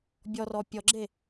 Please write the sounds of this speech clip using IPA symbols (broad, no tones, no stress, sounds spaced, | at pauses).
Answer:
bʲ ɔ r ɔ pʲ ɔ ɡ͡ǁ e